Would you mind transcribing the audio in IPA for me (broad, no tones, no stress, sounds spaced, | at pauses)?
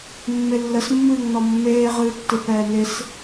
mː ɪ lː ə s mː ɨː ŋ n ɔ mː eː ʁ ɨː tː ɨ p ɛː n ɪ s